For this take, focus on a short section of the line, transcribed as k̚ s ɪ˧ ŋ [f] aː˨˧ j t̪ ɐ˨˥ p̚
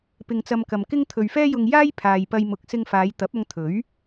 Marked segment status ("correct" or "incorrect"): correct